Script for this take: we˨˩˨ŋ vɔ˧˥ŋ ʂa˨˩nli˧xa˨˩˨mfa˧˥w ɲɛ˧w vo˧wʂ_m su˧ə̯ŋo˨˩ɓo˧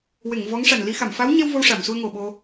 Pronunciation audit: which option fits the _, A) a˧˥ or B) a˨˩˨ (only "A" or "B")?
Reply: B